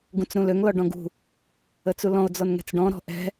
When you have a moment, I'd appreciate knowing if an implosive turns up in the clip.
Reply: no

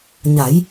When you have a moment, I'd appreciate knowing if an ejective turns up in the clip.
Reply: no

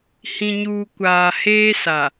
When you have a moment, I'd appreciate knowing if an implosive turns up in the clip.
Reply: no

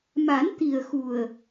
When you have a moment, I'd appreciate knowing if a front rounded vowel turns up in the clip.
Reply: no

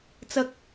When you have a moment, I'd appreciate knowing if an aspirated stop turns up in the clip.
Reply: no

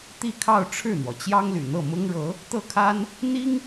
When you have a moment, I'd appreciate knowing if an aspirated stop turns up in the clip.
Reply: yes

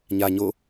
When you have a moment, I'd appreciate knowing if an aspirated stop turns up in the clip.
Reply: no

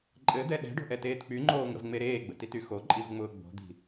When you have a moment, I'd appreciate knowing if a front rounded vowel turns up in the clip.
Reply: yes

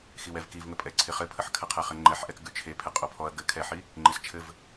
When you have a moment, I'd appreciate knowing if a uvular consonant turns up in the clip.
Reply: yes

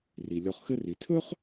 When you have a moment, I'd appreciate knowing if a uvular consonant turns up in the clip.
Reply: yes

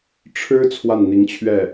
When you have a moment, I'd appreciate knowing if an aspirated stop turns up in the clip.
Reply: yes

